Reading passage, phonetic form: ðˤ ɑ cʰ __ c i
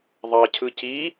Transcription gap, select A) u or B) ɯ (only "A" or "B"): B